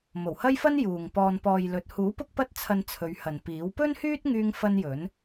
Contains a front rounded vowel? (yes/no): yes